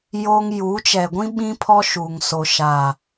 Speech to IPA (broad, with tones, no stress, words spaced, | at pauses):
jo˦ŋ juː˨˦t͡ʃɛ˨ɡʷĩ˦ ɓĩ˦pʰɔ˦ ʃuː˨ŋso˨ʃa˨